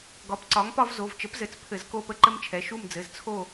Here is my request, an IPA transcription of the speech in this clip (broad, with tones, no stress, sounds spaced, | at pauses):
ɡ ɒ˨˥ p ǀ ɒ˨˥ ŋ p ɒ˦ v z o˩˧˩ v t͡ʃ ə˨˥ p z ɘ˩˧˩ t͡s pʰ ɘ˧˩˧ z k o˦˨ p ə˦ ǃ ɘ˦ m t͡ʃʰ ɛ˩˧˩ ʃ u˦˨ m d͡z ɘ˩˧˩ z t͡sʰ o˦˨